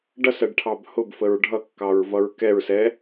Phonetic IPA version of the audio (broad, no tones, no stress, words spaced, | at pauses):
ɖʌsɜɖʈʰɑb hʊbfəɹ ɖʱʌkːɑɹvʌɹ kɛɹsɛ